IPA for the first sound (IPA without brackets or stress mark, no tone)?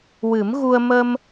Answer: w